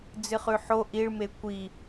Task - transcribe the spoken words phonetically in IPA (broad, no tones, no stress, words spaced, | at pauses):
d͡zɨχʉħo ʔiɭme kʷi